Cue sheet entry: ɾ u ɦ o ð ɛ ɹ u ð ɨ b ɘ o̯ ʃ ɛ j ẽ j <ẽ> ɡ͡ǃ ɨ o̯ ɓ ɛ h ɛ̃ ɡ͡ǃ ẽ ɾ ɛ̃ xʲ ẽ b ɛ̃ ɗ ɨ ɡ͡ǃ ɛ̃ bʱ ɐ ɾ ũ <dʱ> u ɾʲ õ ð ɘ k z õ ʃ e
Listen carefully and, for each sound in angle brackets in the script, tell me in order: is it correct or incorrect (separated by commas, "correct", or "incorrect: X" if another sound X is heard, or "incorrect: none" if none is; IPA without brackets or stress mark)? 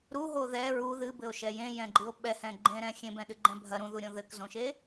incorrect: ɛ̃, incorrect: ð